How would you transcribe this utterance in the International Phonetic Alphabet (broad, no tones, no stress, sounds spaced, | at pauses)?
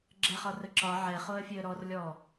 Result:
ɡ͡ǁ ɛ χ ɒ r ə ǁ ɒ ʕ ɛ χ o ə̯ fʲ e ə̯ ɾ ɔ r lʲ ɔ